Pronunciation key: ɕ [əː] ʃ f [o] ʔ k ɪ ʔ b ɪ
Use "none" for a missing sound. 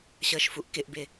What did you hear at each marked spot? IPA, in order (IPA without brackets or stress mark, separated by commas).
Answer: əː, u